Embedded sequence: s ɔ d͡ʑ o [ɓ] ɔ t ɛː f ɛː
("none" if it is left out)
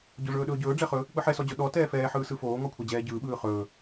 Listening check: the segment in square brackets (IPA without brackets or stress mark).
ɗ